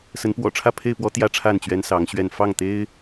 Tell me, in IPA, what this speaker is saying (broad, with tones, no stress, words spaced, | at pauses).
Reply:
sə˨˦n pwɔ̰˨˩ʈ͡ʂʰä˥˨pʰe˥˨ɪ̯ pwɔ˦ t̪jä˦ʈ͡ʂʰa˥˨n t͡ɕɥɛ˦nsɑ˨˦ŋɕɥɛ˥˨n fɑ˥˨ŋt̪e˦ɪ̯